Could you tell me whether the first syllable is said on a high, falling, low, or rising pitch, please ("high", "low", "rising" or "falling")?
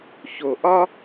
low